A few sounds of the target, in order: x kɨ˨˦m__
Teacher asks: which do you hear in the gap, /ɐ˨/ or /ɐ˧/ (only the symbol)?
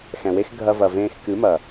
ɐ˨